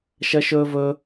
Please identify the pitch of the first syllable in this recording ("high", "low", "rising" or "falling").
high